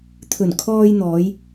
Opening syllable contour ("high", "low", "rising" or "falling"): low